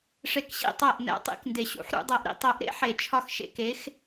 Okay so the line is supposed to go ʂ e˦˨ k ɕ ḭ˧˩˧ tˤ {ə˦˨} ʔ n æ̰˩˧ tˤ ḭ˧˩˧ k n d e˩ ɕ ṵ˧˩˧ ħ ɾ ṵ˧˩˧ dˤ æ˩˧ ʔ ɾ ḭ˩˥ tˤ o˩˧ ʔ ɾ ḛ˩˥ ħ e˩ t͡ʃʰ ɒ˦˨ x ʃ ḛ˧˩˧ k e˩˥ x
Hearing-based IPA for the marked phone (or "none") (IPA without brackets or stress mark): æ˦˨